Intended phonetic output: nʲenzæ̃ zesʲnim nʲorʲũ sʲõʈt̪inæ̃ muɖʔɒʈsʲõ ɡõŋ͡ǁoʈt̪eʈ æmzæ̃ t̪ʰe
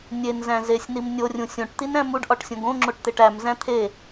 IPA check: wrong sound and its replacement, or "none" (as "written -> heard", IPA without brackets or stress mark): none